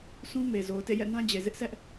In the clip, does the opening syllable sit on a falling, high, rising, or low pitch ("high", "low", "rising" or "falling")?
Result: high